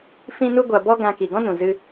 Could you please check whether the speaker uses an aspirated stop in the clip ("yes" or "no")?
no